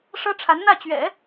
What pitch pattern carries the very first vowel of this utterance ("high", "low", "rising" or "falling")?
high